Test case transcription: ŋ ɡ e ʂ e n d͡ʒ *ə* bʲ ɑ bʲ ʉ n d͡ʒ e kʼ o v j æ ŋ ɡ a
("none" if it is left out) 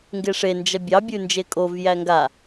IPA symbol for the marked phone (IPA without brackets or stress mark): ɐ